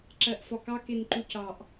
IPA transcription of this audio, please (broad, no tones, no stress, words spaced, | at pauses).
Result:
ǁɜʔfɒkɑ kenǃucɑʔ